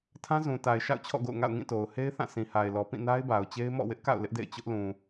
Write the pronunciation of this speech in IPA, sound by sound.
tʰ ã˦ z ũ˨ t a˨ ɪ̯ ʃ a̰˦˨ ʊ̯ t͡ɕʰ ɔ̰˦˨ ɡ o̰˦˨ ʊ̯ ŋ a̰˦˨ ʊ̯ ŋ ĩ˦˨ t o˨ ʊ̯ h e˦ ɪ̯ θ ã˦˨ sʰ ĩ˨ h a˨ ɪ̯ l ɔ˨ p ĩ˦˨ n a˦ ɪ̯ b a˨ ʊ̯ t͡ɕ e˦ ɪ̯ m ɔ̰˦˨ w ɪ˦ ʔ k a̰˦˨ ʊ̯ l ɪ˦ ʔ d ḛ˦˨ ɪ̯ t͡ɕ ʊ˦ ʔ l ũ˨

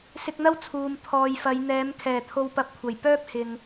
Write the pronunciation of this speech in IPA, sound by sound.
s ɪ˧ k̚ n̪ ɐ˥ w t͡sʰ uː˨ m t̪ʰ ɔː˨ j f ɐ˨˧ j n̪ ɛː˨˧ m kʰ ɛː˨˩ t̪ʰ o˧ w p ɐ˧ p̚ kʷʰ ɐ˨˩ j p œː˥ p̚ h ɪ˨ ŋ

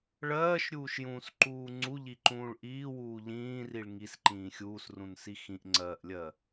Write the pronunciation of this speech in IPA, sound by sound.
ɭ ɜː ʃ ɾʲ uː ʃ j ũː s ǃ uː ŋ͡ǀ u ʎ i ǃ ũː ɭ ʔ iː w uː ʎ ĩː r i ɭ ŋ i s ǃ ĩː xʲ uː s r ũ n s i x ĩ ʔ ŋ͡ǀ ɜː ʔ lʲ ɜ

